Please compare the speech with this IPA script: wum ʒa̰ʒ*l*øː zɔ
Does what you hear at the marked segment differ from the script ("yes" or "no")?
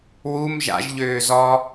yes